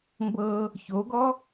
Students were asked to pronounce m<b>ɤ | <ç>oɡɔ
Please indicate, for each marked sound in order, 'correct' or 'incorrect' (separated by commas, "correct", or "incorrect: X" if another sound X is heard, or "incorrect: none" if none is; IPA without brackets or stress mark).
correct, correct